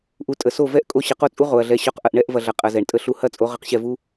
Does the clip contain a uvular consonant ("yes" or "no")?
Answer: yes